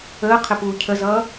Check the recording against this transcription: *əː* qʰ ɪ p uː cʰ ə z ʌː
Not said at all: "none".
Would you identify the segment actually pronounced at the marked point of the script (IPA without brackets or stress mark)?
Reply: əː